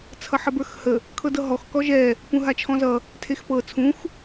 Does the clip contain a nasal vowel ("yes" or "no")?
yes